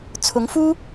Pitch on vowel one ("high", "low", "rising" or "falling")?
rising